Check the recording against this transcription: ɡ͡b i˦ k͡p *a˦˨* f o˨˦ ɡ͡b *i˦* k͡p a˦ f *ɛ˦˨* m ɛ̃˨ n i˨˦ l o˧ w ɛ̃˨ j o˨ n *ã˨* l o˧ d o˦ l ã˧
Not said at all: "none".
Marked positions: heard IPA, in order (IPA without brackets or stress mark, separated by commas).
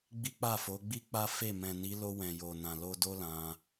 a˦˨, i˦, e˦˨, ã˨